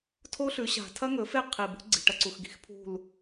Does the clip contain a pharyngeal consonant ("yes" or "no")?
no